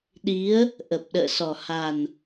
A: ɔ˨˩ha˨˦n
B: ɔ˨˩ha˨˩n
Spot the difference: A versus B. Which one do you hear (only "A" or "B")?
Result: B